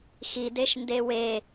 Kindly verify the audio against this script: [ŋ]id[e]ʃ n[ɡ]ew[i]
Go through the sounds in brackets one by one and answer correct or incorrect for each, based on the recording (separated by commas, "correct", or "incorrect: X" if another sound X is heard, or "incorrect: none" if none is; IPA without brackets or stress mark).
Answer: incorrect: x, correct, incorrect: d, incorrect: e